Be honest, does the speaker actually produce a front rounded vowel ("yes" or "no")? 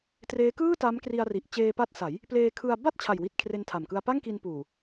no